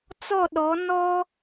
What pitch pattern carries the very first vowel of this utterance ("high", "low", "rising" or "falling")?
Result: falling